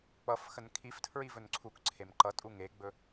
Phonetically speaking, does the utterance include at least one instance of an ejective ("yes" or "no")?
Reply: yes